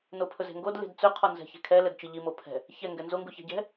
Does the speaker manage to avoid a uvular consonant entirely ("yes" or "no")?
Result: no